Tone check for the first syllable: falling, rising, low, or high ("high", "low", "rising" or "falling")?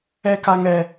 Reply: high